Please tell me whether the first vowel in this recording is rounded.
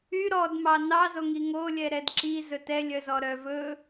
yes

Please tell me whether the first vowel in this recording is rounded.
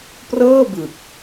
no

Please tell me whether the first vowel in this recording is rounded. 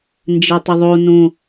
no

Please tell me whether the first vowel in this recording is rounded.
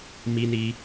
no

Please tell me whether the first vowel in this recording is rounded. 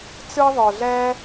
no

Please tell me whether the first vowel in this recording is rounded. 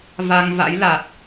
no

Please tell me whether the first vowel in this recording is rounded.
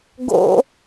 yes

